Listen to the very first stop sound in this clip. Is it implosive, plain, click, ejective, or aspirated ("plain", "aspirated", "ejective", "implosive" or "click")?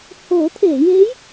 aspirated